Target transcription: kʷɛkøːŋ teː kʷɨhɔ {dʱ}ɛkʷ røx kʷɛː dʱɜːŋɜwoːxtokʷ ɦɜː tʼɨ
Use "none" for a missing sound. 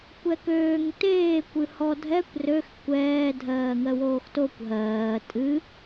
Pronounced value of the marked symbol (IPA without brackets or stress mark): dʱ